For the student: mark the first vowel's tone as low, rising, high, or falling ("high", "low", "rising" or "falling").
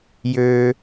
low